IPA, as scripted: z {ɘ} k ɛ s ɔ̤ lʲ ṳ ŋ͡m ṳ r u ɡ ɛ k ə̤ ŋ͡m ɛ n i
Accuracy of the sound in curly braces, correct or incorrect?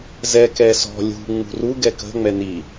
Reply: incorrect